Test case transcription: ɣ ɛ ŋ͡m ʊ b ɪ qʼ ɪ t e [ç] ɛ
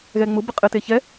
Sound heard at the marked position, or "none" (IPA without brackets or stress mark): ç